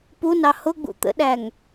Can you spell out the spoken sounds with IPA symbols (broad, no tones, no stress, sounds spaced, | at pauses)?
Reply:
p u n ɑ h ʊ ɡ͡b ṵ t̪ ə̰ ɗ æ ŋ